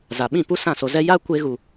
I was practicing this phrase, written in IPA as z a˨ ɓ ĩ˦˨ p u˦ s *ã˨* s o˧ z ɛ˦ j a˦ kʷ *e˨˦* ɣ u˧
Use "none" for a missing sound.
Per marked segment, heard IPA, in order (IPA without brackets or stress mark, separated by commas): ã˦˨, e˦